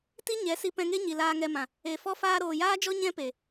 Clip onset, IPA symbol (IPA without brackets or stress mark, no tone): t